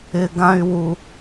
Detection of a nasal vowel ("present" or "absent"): present